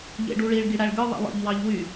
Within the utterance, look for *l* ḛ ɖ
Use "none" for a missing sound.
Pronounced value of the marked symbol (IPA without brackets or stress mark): ʎ